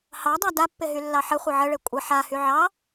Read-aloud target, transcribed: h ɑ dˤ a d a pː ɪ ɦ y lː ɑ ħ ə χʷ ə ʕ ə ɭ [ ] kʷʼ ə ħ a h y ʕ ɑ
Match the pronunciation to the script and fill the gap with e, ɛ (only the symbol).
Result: e